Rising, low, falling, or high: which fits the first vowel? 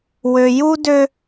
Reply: low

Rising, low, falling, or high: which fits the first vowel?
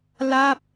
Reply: falling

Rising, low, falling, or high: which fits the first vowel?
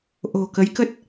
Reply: low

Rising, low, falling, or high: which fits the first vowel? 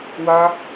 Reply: high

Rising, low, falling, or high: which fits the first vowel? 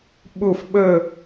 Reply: falling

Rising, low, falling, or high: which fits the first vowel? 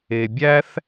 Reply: low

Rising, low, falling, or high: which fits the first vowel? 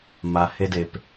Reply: low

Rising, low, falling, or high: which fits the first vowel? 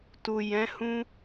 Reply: low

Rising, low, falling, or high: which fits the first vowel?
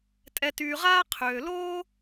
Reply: low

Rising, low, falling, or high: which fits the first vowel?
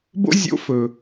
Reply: high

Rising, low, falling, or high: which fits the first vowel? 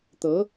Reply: rising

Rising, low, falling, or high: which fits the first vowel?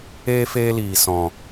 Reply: high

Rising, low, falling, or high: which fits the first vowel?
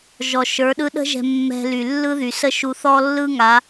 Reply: low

